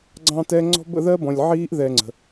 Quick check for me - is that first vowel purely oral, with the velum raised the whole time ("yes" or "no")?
no